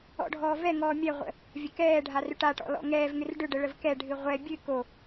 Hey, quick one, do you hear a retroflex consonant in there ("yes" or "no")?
yes